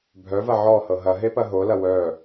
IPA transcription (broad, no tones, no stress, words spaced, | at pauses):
bʱœvɐ ʕɔhɤ ɦɐɦepɐ ɦolɐ wœ